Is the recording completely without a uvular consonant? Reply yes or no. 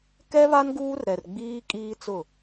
yes